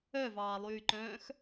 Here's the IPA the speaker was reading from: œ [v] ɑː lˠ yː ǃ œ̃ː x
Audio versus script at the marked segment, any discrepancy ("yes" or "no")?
no